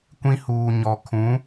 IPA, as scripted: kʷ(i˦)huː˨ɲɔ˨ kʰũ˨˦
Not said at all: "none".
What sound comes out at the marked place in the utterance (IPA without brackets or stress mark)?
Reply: ĩ˦